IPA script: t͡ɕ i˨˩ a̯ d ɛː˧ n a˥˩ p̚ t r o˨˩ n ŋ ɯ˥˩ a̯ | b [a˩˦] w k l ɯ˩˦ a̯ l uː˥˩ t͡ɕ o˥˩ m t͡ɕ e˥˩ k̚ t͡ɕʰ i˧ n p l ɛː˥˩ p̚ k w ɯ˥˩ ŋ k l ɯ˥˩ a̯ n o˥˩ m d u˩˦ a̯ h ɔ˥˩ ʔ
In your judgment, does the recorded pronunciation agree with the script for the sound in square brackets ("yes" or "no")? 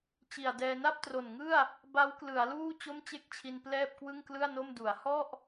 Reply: no